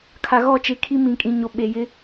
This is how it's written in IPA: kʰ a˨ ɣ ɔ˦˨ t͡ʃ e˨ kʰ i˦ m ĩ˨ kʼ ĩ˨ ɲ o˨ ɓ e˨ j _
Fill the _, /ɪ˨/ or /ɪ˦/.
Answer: ɪ˦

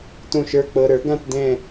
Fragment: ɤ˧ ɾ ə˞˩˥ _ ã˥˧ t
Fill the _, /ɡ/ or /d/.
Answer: ɡ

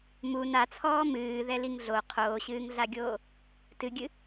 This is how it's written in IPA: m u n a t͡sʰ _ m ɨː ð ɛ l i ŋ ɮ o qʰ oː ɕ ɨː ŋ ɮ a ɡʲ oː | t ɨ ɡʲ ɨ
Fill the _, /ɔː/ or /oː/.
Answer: ɔː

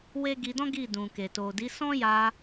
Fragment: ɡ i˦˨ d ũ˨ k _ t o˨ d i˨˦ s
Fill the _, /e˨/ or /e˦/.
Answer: e˨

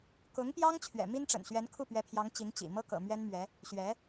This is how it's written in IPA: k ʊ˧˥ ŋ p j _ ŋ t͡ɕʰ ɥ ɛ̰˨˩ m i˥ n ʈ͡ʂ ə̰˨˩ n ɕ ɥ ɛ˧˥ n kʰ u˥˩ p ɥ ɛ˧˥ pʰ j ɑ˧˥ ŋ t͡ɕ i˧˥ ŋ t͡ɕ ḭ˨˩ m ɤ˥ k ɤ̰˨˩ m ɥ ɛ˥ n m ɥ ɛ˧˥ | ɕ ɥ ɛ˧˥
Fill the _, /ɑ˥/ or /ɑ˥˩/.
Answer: ɑ˥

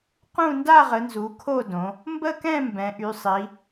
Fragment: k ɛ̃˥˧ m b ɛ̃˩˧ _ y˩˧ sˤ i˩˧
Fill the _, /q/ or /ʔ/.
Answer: ʔ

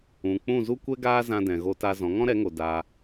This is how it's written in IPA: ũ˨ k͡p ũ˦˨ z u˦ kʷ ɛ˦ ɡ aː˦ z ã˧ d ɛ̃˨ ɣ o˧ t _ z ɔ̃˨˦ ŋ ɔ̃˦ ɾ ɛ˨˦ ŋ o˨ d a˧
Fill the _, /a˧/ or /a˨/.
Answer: a˧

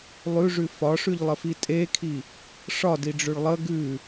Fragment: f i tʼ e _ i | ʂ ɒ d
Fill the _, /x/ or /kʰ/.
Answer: kʰ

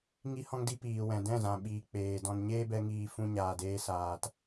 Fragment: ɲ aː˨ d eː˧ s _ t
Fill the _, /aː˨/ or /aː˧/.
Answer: aː˨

